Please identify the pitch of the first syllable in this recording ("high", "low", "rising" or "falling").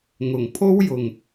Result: low